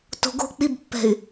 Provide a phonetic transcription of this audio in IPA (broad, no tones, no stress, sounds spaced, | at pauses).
t o̤ ɡ o̤ k͡p i b pː ɛ̤ y̯